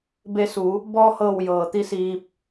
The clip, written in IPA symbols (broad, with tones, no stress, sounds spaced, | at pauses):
b e˧ s u˩˧ | b ɔː˧ h ɤː˧˩ w j ɤː˩ t̪ i˧˥ s iː˧ p̚